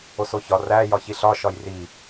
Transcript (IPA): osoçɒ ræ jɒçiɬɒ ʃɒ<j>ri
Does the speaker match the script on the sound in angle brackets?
yes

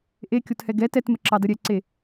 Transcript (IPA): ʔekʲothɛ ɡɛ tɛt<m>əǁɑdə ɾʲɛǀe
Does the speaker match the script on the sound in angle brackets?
yes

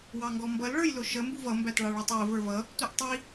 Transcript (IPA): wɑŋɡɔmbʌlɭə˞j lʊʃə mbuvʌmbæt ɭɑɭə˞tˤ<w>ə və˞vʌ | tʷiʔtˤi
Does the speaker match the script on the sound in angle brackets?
yes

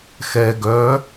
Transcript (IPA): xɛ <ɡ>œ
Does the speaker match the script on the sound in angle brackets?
yes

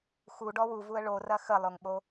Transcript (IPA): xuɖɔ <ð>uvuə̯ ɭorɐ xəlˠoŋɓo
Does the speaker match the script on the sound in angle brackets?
no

